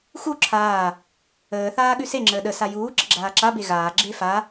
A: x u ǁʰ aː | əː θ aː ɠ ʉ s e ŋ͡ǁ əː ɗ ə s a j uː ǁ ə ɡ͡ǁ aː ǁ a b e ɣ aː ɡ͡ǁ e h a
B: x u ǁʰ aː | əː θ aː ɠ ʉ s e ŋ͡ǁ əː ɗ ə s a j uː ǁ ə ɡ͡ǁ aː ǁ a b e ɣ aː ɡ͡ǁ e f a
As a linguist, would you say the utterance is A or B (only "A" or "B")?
B